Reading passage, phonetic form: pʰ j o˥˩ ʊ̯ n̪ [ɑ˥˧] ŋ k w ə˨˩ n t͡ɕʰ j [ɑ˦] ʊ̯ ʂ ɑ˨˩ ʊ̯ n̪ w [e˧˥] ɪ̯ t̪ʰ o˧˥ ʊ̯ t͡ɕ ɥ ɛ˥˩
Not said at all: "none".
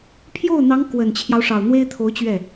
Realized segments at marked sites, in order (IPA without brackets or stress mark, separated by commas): ɑ˧˥, ɑ˦, e˥